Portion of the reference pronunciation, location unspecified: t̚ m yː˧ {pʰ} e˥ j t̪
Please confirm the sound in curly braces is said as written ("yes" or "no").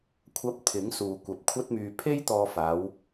yes